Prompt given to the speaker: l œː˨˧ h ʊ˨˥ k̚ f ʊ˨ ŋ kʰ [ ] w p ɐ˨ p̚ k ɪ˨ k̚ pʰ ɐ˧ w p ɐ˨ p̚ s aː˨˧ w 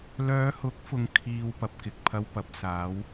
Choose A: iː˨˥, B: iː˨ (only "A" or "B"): B